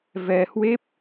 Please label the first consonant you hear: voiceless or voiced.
voiced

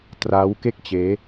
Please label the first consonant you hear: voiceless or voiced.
voiceless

